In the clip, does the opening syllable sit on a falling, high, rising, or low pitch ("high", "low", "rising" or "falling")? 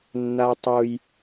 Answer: high